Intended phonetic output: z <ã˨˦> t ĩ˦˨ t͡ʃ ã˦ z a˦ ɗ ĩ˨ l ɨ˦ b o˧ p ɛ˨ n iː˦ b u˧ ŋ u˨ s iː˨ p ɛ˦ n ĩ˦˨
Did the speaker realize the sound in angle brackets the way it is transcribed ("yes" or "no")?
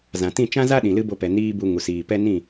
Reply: no